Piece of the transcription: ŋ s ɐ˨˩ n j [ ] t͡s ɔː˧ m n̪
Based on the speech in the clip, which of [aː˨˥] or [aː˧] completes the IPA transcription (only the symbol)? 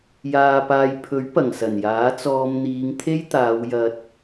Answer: aː˨˥